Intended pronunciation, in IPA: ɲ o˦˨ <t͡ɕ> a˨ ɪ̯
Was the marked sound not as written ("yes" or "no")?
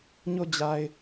yes